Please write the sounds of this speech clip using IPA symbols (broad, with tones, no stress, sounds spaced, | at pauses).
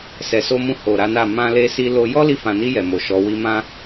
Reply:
s ɛ˨ s o˧ m ũ˧ h o˨ ɾ a˨˦ n a˦˨ m ã˧ l e˧ s i˧ l o˧ j ɔ˦ l i˧ f ã˨ n i˧ j ɛ˨ m o˨ ʃ ɔ˨˦ w i˧ m ã˦